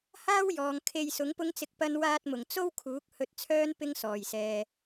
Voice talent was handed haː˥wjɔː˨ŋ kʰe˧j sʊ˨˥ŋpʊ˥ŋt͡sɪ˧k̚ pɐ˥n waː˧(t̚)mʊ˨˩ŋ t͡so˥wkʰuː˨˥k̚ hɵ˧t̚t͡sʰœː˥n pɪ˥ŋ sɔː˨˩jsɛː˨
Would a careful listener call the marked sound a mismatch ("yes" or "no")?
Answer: no